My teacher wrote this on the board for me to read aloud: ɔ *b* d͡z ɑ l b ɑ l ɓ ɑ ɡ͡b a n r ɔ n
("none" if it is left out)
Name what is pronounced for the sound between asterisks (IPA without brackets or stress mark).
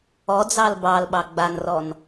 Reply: none